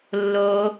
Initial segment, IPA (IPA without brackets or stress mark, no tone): lː